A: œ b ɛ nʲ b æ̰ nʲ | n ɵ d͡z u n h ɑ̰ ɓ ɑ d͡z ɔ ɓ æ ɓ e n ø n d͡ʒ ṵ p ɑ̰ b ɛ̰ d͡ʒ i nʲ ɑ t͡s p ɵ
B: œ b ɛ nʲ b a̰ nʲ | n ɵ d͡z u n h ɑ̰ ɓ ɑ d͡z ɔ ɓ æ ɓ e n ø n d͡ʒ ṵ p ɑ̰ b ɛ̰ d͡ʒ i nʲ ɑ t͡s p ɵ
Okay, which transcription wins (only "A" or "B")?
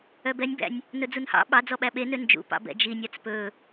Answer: A